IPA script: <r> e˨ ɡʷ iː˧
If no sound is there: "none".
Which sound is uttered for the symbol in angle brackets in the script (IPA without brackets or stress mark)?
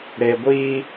ɾ